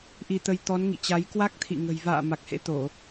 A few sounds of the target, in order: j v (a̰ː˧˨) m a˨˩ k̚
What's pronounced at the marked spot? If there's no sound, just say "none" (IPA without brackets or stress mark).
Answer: a̰ː˧˨